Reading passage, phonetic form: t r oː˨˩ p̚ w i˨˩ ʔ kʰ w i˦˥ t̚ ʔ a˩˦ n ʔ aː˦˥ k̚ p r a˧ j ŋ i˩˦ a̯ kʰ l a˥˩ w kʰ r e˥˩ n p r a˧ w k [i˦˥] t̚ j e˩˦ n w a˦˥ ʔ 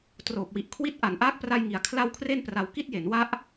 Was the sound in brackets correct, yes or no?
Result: no